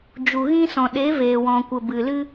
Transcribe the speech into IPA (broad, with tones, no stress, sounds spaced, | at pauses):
d͡ʒ u˨ ɣ ĩ˧ s ɔ̃˨ ɗ e˨˦ v eː˨ w ɔ̃˨ kʷ ə˨ b ɨ˨ l ɨ˧